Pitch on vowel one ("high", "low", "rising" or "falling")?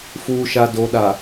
low